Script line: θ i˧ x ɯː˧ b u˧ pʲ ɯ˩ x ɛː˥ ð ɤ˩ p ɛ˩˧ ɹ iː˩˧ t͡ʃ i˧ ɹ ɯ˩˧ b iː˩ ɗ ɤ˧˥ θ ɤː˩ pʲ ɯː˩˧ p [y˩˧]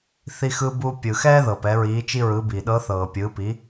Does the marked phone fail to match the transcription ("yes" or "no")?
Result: yes